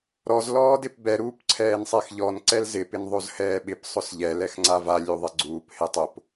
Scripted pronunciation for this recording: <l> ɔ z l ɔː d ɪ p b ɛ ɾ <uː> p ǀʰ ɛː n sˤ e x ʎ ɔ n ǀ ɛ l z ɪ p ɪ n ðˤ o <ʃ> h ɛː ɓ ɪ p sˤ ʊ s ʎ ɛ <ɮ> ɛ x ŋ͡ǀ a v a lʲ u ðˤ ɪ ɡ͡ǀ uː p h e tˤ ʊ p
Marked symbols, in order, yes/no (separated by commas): no, yes, no, no